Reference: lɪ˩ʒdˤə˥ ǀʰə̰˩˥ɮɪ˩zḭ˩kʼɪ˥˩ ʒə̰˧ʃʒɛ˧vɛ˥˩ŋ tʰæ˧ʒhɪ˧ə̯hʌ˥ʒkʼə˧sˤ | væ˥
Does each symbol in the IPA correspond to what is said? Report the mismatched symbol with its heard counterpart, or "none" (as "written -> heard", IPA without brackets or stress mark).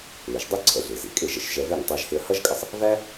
tʰ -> tˤ